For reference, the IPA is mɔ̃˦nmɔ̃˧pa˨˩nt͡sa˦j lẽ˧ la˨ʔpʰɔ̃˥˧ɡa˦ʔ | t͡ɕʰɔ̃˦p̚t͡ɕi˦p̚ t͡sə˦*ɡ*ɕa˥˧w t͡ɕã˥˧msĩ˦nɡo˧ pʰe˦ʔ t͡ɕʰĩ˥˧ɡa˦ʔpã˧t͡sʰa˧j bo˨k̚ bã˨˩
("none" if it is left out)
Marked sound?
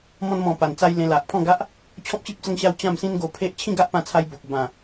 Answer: ŋ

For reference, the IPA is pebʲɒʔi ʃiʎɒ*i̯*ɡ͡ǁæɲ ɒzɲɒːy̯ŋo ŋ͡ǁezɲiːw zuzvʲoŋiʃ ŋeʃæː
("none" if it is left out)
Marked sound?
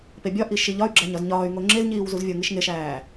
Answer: y̯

